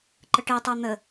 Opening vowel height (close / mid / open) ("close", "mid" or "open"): mid